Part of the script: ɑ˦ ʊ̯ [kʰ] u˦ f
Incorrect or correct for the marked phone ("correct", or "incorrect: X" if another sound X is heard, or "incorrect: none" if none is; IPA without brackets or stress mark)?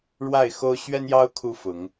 correct